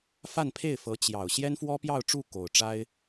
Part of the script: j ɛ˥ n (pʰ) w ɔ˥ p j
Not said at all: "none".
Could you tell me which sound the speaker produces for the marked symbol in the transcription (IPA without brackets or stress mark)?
f